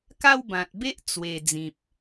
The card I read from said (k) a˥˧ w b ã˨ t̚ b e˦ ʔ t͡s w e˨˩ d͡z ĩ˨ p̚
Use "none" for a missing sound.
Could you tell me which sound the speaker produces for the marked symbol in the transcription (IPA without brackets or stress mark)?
k